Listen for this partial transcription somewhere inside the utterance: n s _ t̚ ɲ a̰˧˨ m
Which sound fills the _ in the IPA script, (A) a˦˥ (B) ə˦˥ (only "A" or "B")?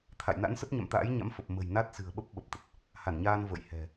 B